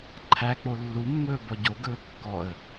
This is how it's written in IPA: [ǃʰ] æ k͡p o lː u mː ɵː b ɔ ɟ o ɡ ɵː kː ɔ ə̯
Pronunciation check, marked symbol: correct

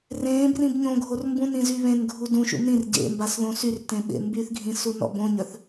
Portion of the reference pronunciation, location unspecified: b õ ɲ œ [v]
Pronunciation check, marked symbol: incorrect: θ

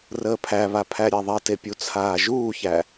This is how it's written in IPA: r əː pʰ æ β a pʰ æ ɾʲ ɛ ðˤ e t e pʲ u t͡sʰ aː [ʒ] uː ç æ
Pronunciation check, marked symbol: correct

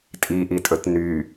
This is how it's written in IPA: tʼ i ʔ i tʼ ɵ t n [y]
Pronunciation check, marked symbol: correct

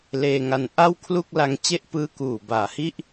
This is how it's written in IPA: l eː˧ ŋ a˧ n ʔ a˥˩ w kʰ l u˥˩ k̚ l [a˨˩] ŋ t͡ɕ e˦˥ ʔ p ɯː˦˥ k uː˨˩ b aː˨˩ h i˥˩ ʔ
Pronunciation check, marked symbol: incorrect: a˧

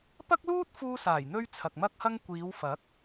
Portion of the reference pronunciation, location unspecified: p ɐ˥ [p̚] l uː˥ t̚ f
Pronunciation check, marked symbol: incorrect: k̚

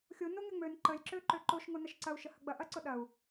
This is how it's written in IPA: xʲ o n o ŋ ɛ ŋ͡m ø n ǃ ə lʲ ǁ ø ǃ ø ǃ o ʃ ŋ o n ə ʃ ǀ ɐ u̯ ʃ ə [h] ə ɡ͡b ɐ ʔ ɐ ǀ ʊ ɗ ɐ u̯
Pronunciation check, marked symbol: correct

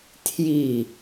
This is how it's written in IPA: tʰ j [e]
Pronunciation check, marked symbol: incorrect: i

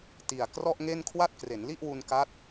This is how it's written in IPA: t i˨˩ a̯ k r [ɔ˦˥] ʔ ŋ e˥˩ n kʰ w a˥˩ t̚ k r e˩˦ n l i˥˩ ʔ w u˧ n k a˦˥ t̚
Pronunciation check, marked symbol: incorrect: ɔ˥˩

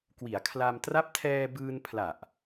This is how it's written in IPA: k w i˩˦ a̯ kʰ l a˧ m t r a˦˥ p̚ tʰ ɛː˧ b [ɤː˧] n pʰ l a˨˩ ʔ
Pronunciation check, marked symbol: incorrect: ɯː˧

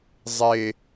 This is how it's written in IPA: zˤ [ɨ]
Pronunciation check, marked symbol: incorrect: e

